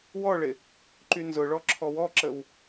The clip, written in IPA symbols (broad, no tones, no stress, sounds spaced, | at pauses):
w ɔ ɭ ɪ | ǃ y n z ʊ ɭ ɔ ǁʰ ɔ w ɔ ǁ ə w